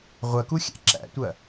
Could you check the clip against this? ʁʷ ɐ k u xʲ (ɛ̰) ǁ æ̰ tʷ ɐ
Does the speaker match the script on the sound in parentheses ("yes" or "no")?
no